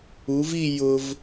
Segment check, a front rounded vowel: absent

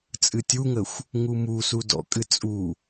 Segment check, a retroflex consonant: absent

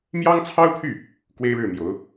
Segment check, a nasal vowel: absent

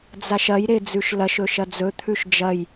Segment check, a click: absent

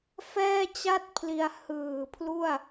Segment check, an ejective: absent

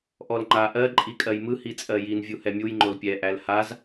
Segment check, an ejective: present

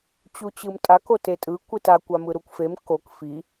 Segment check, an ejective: present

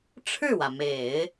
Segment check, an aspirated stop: present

